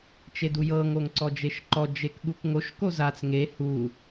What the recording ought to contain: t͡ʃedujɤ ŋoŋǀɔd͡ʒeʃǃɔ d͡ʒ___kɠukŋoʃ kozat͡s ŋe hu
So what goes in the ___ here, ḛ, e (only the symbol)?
e